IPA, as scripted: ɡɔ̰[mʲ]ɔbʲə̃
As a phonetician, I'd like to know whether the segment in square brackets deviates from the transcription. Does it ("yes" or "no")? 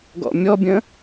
no